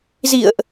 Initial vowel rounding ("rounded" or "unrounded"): unrounded